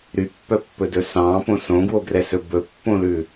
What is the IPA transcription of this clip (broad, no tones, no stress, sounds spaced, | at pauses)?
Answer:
ɾ y pː œ pː ɵ d ɵ s ɑ̃ p õ s õ ɡ w o ɡ r ɛ s ɵ b ɵ pː õ l ʉ